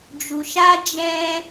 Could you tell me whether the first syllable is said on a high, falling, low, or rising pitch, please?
low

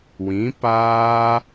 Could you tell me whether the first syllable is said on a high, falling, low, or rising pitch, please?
rising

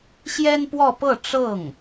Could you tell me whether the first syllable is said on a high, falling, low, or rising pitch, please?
high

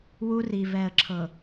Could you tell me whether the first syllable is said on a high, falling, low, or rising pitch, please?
high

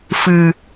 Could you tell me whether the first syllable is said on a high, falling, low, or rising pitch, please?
low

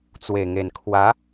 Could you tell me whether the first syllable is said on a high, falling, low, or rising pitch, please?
low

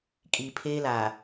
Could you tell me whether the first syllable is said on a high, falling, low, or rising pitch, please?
low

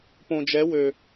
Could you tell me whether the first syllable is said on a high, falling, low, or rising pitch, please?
low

